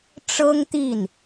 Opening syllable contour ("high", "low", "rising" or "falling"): high